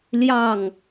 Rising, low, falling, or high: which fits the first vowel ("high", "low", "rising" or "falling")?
falling